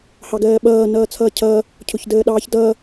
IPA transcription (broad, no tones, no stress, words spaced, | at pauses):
hɑɡɜːɓʌː nʌːt͡sʰʌːcʰʌː | cʰʊçdəːɗɑːçdʌː